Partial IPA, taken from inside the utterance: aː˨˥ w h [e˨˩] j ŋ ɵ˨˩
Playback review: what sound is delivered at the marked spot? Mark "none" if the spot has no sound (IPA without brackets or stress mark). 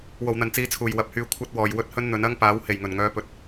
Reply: e˨˩